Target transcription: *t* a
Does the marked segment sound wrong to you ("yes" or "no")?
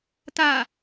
no